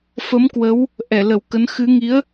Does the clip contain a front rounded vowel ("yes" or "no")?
no